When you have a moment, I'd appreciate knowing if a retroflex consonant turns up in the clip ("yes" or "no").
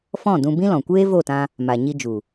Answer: no